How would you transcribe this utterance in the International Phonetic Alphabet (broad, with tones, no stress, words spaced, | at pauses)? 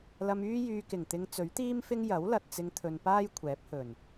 lɐ˧myː˥jyː˧ kɪ˨˩ŋt̪ɪ˧ŋ t͡sɵ˨˥ɥt̪iː˥mfɪ˥ŋ jɐ˨˥wlɐ˨t̚ t͡sɪ˧ŋ t̪ʰɵ˨npaː˥j kʷʰɛː˨˥p̚hɵ˨˩n